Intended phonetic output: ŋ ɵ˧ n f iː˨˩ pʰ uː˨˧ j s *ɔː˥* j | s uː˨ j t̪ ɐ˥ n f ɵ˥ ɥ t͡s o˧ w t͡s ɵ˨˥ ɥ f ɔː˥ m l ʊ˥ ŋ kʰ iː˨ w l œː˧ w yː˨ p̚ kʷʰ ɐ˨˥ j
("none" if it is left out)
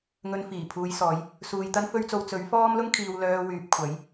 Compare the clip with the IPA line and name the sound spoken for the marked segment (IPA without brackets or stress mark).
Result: ɔː˨˧